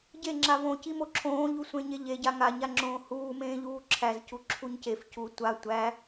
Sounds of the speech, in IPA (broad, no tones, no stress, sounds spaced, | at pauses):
ɟ e ŋ͡ǁ a v õ c i m o ǁʰ õː ʎ u sʷ ẽ ɲ e ʎ e ɟ a ŋ a ɲ a ŋ͡ǁ õː h uː m ẽː ʎ uː ǁʰ æ z c u ǁʰ u ɲ c e f c u tʷ a tʷ æ